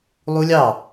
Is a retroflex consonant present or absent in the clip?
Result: absent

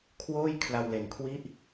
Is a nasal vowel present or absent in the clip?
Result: absent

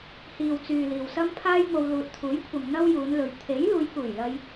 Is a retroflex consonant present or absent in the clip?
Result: absent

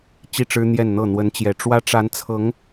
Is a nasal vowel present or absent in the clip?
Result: absent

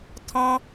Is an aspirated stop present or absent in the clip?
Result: present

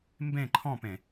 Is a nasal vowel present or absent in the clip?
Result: present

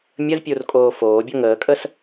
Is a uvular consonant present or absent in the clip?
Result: absent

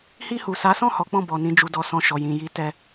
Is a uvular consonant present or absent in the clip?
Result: absent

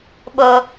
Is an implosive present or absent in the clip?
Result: present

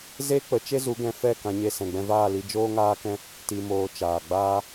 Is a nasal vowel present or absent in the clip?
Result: present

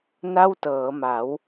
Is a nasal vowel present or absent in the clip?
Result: absent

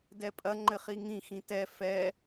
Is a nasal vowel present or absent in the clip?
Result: present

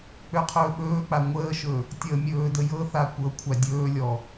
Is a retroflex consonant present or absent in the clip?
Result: absent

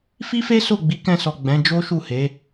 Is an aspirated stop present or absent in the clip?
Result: absent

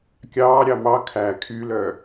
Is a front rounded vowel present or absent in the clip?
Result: present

